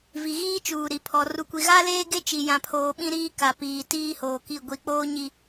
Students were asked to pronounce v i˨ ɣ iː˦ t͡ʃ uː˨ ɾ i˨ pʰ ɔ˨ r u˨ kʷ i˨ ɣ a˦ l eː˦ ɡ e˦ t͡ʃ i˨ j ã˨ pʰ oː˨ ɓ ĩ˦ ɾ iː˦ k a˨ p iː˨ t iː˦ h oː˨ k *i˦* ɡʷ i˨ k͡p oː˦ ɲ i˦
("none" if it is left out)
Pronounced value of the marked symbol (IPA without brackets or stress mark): i˦˨